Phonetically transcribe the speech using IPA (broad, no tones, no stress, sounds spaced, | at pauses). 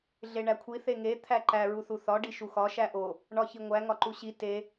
ɮ e ɳ æ kʷʰ i θ e ŋ e t̪ʰ æ ǃ æ ɹ u θ u θ ɒ ɖ i ʃ u x ɒ ʃ æ ʔ o | ɳ ɒ ç i ŋʷ æ ŋ ɒ ǃ u ɕ i t e